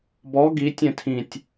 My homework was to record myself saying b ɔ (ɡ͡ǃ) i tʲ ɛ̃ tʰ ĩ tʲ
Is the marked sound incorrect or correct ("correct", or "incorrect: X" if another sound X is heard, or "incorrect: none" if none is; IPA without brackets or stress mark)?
incorrect: ɡ